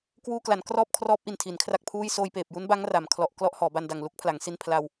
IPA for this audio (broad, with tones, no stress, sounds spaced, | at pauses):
k w uː˧ k l a˩˦ n k r ɔː˥˩ p̚ kʰ r ɔː˦˥ p̚ ʔ i˨˩ n tʰ i˩˦ n kʰ r a˥˩ k̚ pʰ uː˥˩ j s oː˧ j p eː˨˩ p̚ j u˦˥ n b a˦˥ ŋ r a˩˦ m kʰ l ɔ˨˩ ʔ k l ɔ˥˩ ʔ h ɔː˩˦ b a˧ n d a˨˩ ŋ l u˦˥ k̚ pʰ l a˩˦ ŋ s i˧ n pʰ l a˧ w